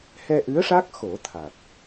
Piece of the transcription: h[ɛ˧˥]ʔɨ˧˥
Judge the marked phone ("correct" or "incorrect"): incorrect